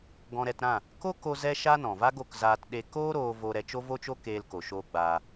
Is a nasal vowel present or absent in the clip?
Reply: present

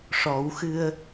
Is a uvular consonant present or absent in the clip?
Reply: absent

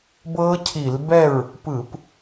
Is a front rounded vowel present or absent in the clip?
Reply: absent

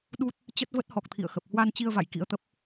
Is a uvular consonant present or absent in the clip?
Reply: absent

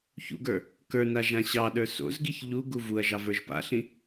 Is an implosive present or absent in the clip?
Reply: present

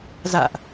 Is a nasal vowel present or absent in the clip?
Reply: absent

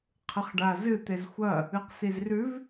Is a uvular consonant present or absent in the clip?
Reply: present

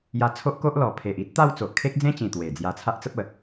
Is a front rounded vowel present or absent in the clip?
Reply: absent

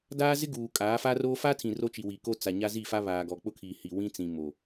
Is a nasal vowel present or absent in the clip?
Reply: present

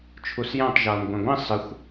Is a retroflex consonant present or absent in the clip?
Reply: absent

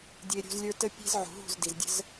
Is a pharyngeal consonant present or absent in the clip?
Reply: present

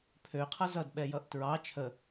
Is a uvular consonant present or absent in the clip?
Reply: present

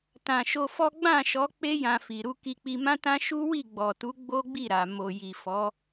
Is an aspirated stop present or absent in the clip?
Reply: absent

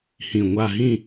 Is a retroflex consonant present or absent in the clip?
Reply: absent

